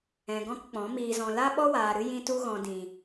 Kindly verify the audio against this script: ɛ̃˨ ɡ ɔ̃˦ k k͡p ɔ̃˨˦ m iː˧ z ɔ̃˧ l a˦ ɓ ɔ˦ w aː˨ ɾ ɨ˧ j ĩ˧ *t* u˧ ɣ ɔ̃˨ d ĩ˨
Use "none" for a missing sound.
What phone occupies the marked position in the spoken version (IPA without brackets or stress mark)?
t